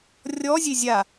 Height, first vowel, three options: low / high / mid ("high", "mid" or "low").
mid